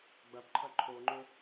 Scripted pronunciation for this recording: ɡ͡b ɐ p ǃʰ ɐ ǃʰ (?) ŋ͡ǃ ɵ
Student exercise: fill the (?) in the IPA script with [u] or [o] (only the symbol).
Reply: o